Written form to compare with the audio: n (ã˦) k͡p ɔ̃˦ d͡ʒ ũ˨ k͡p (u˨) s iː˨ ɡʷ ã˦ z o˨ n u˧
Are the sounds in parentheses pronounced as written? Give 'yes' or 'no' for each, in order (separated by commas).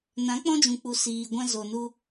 no, yes